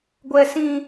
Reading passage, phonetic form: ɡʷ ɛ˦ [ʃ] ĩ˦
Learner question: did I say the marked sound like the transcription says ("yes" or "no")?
no